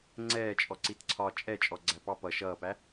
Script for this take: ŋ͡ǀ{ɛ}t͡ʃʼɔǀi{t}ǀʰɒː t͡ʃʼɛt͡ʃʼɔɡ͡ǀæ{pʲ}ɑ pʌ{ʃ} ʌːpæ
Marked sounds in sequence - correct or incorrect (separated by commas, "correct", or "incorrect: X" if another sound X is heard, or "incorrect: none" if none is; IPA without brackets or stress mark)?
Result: incorrect: ɛː, correct, incorrect: p, correct